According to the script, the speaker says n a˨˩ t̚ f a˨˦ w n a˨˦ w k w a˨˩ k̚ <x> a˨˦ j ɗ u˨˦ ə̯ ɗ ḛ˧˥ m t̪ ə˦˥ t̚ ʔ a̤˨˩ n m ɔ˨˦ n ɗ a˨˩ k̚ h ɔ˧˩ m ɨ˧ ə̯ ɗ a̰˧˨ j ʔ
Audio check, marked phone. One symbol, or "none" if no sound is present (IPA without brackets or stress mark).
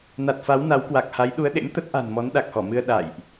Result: h